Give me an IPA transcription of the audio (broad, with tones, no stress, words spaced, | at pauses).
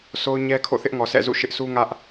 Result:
sʰo˦ʊ̯ɲɛ˦ kʰo̰˦˨θɪ˦ʔŋɔ˨ sʰɛ̰˦˨zṵ˦˨ʃɪ˦ʔ sʰu˦ŋä˦ʔ